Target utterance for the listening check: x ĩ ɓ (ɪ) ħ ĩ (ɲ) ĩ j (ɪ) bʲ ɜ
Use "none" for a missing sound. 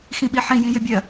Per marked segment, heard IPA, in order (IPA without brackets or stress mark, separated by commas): i, j, ɪ